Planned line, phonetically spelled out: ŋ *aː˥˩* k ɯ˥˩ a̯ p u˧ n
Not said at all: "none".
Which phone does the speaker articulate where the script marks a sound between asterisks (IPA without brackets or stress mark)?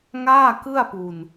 aː˥˩